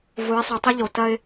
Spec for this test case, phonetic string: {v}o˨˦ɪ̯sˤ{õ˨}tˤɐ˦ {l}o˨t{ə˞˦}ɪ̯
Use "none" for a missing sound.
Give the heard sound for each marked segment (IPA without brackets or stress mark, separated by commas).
v, o˨, ʎ, ɐ˦